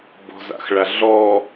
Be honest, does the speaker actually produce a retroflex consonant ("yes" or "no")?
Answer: yes